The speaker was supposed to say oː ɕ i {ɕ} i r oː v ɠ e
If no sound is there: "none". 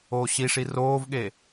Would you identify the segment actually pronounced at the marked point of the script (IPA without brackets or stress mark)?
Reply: ʂ